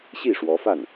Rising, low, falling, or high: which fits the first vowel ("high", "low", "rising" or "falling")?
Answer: falling